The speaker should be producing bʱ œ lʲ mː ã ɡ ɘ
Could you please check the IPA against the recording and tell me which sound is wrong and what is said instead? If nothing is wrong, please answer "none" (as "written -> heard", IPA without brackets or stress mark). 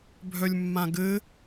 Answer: none